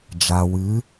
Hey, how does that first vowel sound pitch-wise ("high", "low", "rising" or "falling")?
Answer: low